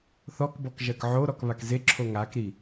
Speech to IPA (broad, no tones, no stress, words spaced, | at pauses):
θɔkbɔk ʒɜkʕoɾɔk βakzeǁʰo ŋakɾi